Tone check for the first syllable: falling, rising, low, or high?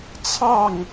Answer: falling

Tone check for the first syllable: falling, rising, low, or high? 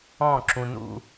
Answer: falling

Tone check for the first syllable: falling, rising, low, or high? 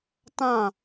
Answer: falling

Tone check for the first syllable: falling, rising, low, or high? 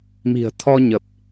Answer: low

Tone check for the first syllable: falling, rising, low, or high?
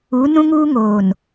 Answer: rising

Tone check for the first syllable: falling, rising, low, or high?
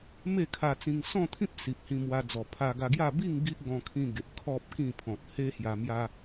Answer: falling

